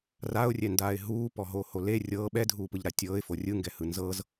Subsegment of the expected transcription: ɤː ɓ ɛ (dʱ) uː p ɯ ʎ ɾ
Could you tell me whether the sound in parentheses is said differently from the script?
no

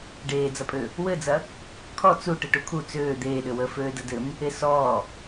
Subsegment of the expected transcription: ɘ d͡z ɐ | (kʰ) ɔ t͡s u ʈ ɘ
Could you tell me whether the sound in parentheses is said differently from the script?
no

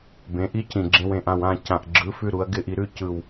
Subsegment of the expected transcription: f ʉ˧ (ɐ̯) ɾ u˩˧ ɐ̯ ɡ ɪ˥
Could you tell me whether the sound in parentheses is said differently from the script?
yes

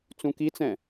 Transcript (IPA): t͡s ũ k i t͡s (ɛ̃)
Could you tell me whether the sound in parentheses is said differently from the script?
no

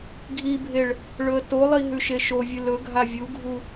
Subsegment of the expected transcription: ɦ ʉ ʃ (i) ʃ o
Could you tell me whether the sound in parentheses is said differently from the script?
yes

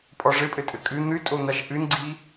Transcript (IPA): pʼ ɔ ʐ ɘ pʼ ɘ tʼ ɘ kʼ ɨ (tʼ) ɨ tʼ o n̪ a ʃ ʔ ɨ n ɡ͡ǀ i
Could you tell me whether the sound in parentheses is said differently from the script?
yes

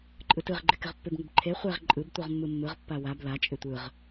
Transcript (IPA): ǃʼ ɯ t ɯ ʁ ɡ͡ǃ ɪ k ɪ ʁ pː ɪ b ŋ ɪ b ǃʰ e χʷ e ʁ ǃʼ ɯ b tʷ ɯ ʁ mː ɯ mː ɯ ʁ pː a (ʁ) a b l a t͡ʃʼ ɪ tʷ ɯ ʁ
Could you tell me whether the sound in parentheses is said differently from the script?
yes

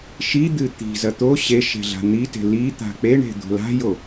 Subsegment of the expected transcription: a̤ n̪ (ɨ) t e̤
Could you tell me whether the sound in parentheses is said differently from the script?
yes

